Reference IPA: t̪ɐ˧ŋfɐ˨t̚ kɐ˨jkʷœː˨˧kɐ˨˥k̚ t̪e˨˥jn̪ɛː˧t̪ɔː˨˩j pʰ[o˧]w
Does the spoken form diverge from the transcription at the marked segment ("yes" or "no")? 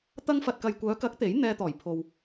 yes